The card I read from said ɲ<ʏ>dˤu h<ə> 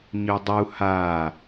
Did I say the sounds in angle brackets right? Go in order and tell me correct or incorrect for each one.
correct, incorrect: a

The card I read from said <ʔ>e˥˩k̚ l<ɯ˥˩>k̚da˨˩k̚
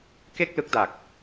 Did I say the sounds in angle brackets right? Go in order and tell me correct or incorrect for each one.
incorrect: k, incorrect: ɯ˦˥

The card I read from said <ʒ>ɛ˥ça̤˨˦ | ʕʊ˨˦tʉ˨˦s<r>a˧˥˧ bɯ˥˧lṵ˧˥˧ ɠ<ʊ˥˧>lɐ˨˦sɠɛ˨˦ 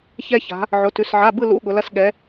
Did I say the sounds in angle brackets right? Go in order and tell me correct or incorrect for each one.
incorrect: ç, incorrect: ʕ, incorrect: ʊ˨˦

